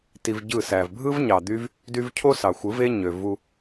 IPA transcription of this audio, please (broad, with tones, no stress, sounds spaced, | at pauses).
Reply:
t i˧ v ɟ ɯ˦˨ s æ˨ v bʱ ɯ˦ v ɲ ɑ˨ d̪ y˦ v | d y˦ v cʰ o˦ s ɑ˨ xʷ ɯ˨˦ v e˦ ɲ ø˨ v u˧